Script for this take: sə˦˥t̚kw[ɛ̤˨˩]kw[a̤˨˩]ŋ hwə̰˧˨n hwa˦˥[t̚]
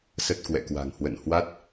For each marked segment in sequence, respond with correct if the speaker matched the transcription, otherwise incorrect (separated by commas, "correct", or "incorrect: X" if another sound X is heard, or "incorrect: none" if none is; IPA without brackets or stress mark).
incorrect: ɛ̰˧˨, correct, correct